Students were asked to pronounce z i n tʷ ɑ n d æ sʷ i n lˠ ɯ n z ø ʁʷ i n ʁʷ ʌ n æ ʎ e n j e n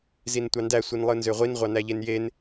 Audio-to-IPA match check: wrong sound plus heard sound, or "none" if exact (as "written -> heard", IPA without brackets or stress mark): ʌ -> ɑ